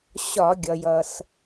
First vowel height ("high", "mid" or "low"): low